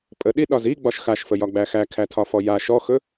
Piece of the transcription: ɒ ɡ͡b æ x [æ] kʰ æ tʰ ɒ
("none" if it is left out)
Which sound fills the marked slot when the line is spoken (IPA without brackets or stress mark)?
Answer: æ